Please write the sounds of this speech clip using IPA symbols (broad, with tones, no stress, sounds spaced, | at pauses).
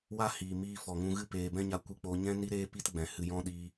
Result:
w a˦ h iː˨ m iː˧ f ɔ˨ ŋ ũ˧ ɣ ɨ˦ p eː˨ b ɛ̃˦ ɲ a˧ kʷ ɨ˧ k͡p o˧ ɲ ɛ̃˦ n i˦ ɾ eː˦ p i˦ t ɡ͡b ɛ̃˨ h ɨ˨ j ɔ̃˧ ɗ iː˧